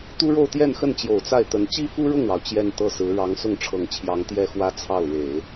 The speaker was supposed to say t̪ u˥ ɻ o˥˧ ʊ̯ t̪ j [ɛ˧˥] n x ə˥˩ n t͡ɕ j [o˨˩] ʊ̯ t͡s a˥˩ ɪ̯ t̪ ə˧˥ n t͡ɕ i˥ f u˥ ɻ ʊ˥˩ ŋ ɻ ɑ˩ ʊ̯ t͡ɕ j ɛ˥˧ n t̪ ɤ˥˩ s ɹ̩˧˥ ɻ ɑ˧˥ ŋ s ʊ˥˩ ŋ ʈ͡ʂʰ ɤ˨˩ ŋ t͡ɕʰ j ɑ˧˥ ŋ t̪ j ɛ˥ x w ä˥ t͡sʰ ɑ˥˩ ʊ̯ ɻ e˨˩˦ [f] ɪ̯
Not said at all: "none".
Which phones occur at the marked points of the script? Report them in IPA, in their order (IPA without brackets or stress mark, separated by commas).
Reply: ɛ˥˧, o˨˩, none